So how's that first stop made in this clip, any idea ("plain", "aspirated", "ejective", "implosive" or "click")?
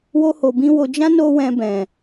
plain